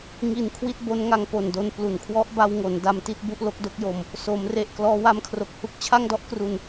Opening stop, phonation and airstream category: aspirated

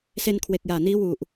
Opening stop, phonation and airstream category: aspirated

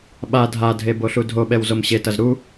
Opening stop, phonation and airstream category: implosive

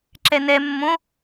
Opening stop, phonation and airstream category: click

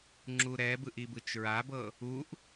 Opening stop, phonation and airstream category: click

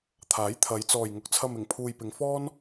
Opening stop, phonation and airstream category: aspirated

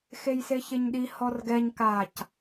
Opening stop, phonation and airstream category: implosive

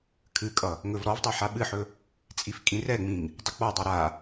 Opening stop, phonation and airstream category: aspirated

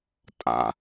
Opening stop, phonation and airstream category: ejective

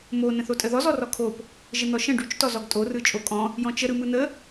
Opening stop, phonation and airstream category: ejective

